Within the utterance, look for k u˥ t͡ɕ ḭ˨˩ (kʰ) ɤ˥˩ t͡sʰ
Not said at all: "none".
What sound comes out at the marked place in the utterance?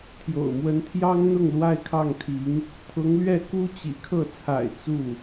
kʰ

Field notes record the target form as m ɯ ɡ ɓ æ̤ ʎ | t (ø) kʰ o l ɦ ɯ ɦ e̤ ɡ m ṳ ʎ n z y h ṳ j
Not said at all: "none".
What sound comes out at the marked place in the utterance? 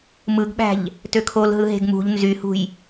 ø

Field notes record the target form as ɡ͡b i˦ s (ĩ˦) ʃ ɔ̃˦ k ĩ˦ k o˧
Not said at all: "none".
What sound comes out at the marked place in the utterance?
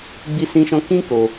ĩ˦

